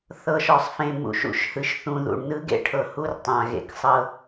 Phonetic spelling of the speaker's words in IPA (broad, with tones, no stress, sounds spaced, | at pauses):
θ ɤ˨ ʃ ɔ˨ sˤ f ẽ˨ m ṵ˨ ʃ ṵ˨ ʃ h ɯ˨ ʃ θ ũ˨ ð ṵ˨ ɳ n ɯ˦ ɡ ḛ˦ ʈʰ ɤ˨ h u˦ r tˤ ã˨ ɣ ḛ˨ k sˤ ɤ˦